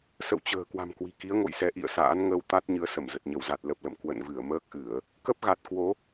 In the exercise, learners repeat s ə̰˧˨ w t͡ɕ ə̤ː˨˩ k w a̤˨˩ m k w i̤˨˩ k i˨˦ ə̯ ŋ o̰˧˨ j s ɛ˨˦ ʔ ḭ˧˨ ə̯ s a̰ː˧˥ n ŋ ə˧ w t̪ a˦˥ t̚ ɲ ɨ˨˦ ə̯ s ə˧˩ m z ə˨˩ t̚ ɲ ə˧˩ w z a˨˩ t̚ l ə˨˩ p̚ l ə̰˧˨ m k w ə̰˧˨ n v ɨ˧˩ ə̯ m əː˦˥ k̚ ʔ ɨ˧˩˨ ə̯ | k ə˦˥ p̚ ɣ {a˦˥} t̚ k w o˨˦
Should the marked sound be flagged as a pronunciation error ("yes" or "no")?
yes